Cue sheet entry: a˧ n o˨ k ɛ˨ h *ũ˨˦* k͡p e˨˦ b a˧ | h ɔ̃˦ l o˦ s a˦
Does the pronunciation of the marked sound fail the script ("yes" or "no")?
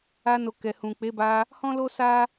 yes